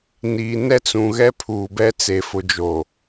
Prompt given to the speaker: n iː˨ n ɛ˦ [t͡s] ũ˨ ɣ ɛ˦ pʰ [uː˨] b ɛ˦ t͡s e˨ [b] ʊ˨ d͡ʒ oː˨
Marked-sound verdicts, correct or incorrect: correct, correct, incorrect: f

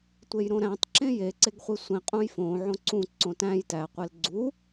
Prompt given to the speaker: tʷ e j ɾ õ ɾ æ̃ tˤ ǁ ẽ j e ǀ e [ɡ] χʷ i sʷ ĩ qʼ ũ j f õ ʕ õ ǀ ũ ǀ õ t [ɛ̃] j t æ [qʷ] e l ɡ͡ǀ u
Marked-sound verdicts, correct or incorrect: correct, incorrect: æ̃, correct

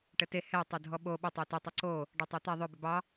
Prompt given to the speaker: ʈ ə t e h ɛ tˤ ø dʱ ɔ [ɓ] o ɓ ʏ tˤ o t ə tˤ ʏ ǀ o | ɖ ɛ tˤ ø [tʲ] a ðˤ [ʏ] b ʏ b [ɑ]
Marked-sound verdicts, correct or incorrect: correct, incorrect: t̪, correct, correct

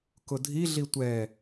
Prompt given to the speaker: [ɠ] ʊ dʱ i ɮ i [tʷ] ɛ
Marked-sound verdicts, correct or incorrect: incorrect: k, correct

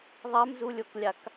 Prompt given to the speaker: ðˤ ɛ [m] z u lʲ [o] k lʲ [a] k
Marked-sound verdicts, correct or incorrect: correct, correct, correct

